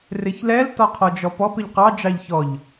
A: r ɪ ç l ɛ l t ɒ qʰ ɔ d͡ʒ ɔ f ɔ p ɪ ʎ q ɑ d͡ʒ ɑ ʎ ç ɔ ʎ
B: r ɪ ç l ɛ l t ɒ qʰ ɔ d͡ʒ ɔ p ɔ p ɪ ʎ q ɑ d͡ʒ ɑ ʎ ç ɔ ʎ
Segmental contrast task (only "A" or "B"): B